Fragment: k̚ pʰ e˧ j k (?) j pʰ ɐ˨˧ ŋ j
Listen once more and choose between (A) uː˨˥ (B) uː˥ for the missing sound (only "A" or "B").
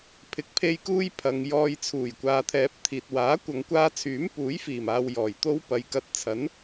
B